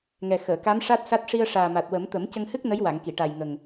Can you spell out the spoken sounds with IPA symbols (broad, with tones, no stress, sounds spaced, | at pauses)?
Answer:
ŋ ɛ˨˩ x əː˨˩˨ k a˧˥ m ʂ a˦˥ t̚ s a˦˥ t̚ ʂ i˧ ə̯ ʂ aː˨˩ m a˨˩ t̚ w ə˨˩˦ m t̪ ə˨˩˦ m c ə˧ ŋ h ɨ˦˥ k̚ n ə˧˥ j w a˨˩˨ ŋ k i˨˩˨ ʈ a˨˩ j ŋ ə˨˩ ŋ